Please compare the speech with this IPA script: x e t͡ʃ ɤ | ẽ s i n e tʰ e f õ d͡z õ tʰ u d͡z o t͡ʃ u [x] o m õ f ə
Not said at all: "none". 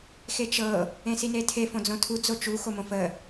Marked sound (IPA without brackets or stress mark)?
x